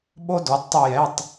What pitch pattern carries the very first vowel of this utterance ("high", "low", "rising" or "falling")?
high